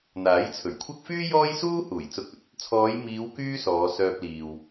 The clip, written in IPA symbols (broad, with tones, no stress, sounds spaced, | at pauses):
n̪ aː˨˥ j t͡sʰ ɵ˨˩ ɥ kʷʰ ɐ˥ k̚ f yː˥ j ɔː˥ j s uː˥ h uː˨˩ j t͡s ʊ˧ k̚ ɵ˧ t̚ | t͡sʰ ɔː˨˧ j m iː˨˧ w k yː˥ s ɔː˨˧ s œː˧ p̚ l iː˨ w